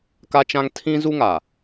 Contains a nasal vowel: yes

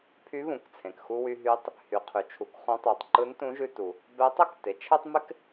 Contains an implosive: no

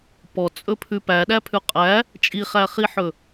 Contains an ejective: yes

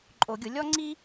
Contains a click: yes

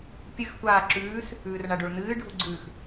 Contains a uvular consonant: no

